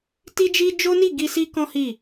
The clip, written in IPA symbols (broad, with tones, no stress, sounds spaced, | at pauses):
t i˦ d͡ʒ i˦ d͡ʒ o˦ n i˦˨ ɡ i˧ s i˦ k ɔ̃˦ h i˦˨